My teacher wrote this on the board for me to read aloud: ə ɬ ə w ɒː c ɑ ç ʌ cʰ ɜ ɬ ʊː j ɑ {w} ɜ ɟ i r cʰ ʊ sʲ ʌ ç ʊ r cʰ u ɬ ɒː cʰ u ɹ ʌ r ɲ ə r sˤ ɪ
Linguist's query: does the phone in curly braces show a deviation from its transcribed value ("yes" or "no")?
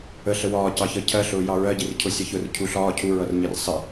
yes